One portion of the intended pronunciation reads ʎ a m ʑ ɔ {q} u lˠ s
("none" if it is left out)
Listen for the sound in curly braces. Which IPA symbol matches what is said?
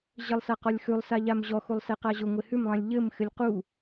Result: x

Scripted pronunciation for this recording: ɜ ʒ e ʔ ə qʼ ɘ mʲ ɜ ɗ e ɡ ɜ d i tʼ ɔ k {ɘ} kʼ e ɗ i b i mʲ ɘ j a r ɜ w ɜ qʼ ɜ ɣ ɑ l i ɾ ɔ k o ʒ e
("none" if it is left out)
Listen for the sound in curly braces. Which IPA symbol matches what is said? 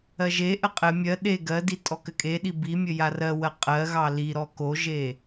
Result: ɘ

